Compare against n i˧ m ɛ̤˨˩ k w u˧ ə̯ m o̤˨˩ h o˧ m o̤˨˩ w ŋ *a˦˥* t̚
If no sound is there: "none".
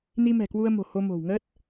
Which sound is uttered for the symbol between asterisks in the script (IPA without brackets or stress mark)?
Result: ə˦˥